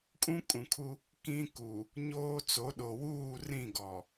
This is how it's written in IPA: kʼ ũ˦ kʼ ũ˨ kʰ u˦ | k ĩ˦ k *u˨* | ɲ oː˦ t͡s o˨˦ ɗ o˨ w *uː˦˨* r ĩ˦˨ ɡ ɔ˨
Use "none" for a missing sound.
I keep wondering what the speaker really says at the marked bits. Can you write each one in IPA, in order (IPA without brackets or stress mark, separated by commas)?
u˨, uː˦˨